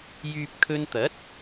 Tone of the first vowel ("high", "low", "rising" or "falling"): low